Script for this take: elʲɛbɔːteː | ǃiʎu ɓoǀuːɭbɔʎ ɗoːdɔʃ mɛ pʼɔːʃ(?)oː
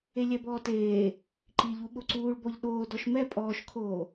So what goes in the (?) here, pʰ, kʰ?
kʰ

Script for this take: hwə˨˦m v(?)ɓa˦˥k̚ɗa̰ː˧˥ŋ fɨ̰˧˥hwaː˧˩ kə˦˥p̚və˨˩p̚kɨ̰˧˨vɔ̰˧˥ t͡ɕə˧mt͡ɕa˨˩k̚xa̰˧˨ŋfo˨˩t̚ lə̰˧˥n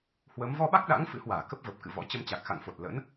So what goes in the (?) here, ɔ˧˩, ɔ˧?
ɔ˧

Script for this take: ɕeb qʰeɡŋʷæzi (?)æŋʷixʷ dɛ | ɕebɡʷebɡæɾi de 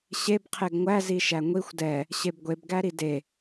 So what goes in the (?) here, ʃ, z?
ʃ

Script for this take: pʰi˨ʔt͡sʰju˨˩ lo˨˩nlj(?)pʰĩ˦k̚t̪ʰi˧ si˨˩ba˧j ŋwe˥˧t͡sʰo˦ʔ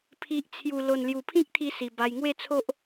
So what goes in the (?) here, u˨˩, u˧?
u˨˩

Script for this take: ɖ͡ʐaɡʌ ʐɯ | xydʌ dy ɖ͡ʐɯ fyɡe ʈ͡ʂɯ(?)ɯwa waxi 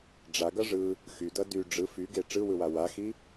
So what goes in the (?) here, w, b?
w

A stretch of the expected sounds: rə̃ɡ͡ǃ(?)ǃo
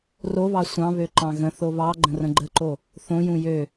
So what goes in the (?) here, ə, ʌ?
ə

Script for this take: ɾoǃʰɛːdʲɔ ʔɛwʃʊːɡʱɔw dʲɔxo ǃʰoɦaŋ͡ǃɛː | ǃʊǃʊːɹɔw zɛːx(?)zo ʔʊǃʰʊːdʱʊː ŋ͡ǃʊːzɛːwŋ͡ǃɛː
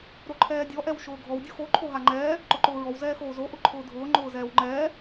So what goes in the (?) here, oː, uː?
oː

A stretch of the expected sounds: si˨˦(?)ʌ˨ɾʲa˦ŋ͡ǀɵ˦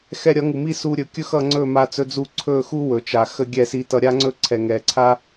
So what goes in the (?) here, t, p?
t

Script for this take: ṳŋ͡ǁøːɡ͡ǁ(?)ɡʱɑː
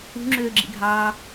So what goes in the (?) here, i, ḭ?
ḭ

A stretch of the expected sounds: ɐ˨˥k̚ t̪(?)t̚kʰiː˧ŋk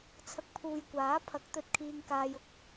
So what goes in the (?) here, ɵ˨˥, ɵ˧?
ɵ˧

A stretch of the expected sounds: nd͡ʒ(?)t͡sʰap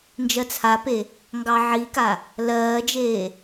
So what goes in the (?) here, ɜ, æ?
ɜ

